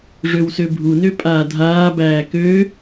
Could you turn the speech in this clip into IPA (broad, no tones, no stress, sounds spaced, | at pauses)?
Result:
ʐ ø w s ø bʱ u n ø pʼ aː dʱ aː b æː k ø